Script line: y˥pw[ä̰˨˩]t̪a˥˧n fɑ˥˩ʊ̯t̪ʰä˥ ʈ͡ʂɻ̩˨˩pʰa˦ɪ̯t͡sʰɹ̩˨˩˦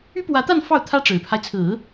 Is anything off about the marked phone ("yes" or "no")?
yes